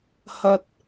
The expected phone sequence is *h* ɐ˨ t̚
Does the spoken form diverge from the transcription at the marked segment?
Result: no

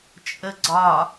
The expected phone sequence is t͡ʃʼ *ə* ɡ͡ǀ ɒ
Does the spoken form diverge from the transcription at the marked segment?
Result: no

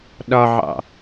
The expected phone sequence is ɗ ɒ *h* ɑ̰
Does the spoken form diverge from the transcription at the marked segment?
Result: yes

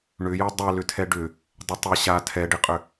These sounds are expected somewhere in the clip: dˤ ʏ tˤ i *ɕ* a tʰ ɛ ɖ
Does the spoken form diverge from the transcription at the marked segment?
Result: no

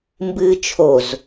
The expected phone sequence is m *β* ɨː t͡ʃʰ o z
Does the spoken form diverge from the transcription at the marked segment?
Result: yes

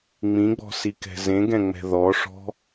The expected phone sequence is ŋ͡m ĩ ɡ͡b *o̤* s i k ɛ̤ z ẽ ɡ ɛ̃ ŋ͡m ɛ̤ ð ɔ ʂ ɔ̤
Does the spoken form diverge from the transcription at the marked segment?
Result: yes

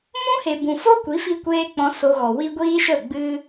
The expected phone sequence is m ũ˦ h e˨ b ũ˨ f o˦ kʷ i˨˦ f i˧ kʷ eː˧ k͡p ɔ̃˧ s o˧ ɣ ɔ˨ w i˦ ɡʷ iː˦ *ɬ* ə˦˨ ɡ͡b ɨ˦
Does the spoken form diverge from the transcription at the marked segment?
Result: yes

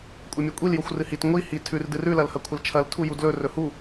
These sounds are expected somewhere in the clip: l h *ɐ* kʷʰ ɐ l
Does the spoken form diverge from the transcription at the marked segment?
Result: no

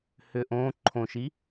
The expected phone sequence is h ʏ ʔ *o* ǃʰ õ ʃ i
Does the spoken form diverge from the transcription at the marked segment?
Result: yes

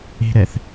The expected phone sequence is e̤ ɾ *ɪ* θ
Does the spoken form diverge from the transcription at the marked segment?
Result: yes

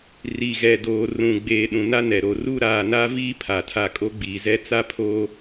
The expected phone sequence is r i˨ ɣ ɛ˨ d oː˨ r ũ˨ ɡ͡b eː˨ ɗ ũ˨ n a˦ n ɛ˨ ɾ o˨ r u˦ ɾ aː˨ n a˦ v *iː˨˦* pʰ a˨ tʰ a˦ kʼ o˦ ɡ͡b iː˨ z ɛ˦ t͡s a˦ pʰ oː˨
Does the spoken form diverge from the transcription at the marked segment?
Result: yes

